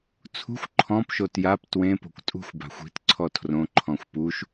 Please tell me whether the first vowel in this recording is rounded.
yes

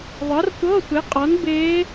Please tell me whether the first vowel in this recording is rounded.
no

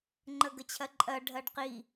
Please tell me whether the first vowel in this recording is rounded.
no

